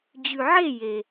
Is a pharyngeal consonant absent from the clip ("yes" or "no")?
no